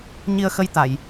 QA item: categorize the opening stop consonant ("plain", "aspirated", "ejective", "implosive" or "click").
plain